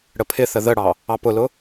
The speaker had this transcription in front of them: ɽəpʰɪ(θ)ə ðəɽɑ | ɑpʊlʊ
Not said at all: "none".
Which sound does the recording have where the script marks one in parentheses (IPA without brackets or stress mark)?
θ